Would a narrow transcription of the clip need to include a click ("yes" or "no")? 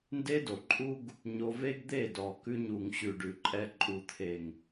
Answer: yes